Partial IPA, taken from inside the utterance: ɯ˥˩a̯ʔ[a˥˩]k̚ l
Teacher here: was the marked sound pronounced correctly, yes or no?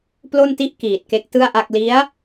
yes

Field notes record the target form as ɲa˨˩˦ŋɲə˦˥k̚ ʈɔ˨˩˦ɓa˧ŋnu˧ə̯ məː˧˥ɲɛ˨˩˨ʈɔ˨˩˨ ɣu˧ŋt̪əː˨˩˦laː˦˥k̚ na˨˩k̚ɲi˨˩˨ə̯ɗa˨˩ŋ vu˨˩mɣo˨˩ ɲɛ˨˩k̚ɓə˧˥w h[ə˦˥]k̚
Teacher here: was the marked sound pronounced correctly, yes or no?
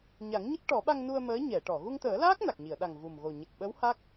no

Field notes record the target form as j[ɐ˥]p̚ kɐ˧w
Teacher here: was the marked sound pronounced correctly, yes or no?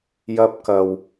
yes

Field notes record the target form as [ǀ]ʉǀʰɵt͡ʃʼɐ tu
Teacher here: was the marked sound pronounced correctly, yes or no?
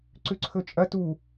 yes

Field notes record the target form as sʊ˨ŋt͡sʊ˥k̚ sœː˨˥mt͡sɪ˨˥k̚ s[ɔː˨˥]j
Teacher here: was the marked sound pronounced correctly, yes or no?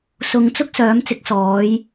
yes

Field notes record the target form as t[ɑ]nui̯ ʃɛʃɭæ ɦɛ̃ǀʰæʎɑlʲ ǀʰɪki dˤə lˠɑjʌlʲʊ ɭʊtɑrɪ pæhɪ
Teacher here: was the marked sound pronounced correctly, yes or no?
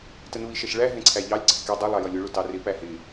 no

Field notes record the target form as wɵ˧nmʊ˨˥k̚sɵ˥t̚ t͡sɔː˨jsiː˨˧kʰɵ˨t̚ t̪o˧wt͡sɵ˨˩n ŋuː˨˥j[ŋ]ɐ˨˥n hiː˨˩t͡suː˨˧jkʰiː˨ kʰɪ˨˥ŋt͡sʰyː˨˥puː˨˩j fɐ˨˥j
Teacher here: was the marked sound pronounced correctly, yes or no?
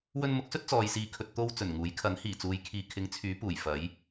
no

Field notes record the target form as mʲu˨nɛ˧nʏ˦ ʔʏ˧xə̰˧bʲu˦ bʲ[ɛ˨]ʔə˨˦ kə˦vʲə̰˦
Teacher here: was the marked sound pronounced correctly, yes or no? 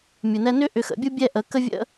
no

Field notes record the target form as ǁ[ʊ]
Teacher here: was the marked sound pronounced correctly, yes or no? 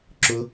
yes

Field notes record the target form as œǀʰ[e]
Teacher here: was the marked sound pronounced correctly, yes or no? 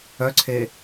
yes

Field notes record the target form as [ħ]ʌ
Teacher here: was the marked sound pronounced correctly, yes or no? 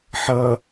yes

